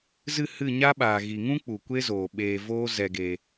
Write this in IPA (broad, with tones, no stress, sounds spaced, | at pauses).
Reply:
z ɨ˦˨ h ɨ˦˨ ɲ a˦ ɓ aː˨ ɣ i˨ ŋ ũ˦ k͡p u˨ kʷ e˦ z oː˨ ɓ eː˨ v oː˦ z ɛ˧ ɡ e˧